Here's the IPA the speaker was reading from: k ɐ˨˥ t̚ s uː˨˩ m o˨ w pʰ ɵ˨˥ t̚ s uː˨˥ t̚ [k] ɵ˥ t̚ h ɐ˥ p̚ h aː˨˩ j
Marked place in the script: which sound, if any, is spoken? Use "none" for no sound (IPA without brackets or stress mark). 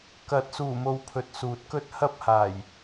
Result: k